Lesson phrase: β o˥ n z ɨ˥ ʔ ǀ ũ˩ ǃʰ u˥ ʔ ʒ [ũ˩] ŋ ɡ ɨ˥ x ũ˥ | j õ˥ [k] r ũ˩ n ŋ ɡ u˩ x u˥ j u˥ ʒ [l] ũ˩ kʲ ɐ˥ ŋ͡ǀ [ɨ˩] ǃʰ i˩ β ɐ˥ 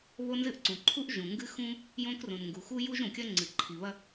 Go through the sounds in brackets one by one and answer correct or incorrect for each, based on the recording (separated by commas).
correct, correct, incorrect, correct